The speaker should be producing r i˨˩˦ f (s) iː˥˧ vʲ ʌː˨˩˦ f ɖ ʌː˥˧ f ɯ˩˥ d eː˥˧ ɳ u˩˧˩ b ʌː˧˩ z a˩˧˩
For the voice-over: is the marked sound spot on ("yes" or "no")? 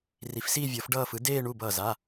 yes